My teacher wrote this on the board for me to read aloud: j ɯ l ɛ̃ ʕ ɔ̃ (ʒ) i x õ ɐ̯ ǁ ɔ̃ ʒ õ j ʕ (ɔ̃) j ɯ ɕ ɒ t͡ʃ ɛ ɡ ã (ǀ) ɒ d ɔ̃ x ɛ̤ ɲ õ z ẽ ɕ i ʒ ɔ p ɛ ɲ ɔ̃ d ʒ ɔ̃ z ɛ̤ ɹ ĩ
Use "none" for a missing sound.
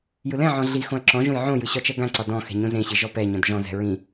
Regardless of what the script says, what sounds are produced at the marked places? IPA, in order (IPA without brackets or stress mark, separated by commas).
ɮ, õ, ǀ